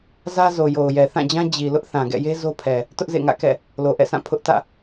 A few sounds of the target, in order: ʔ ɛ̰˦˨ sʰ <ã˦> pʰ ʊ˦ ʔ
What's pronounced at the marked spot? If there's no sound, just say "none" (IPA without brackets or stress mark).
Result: ã˦˨